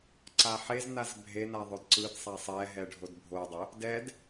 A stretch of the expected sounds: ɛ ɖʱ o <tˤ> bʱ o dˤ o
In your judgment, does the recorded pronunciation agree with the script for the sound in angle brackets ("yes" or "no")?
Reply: no